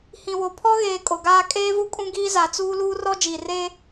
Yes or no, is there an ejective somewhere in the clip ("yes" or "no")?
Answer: yes